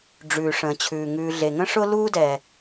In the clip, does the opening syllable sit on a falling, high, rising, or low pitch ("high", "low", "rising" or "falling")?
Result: low